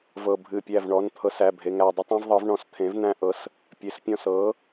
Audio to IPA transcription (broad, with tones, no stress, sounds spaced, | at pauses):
v ɤ˧˩ bʱ ɨ˧˩ pʲ æ˧˩ v ɳ ɔ˩˧˩ n t̪ʰ ɤ˩˥ s æ˩˧˩ bʱ e˩˧˩ ŋ æ˧˩ dˤ ɨ˦ tˤ ẽ˦ v ðˤ ɤ˩˥ v ɳ ɔ̃˧˩ s t̪ʰ ẽ˩˥ v n̪ æ̃˦ ʔ ɤ˩˧˩ s | pʲ e˩˥ s pʲ ɔ̃˧˩ s ɤ˩˥